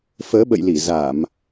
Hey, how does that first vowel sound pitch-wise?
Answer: rising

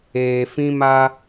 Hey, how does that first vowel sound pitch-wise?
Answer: low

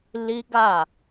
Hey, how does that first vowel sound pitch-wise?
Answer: high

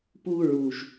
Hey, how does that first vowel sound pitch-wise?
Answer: high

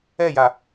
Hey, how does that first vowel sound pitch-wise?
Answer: falling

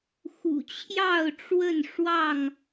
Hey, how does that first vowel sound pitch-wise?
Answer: low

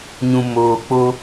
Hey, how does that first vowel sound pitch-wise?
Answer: low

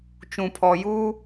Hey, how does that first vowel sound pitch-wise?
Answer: low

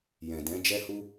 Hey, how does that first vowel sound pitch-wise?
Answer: low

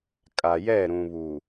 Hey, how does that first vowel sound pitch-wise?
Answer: low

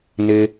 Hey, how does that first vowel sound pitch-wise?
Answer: high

